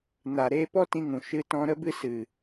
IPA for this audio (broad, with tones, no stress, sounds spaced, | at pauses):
n a˨ ɾ eː˧ p ɔ˦ t ĩ˧ ŋ ũ˨ ʃ ɨ˧ t ɔ̃˧ ɾ ə˦ b ɨ˦ s ɨ˨